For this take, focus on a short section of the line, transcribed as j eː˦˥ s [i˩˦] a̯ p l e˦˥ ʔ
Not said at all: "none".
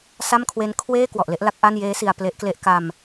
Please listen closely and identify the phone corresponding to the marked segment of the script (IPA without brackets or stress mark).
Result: i˧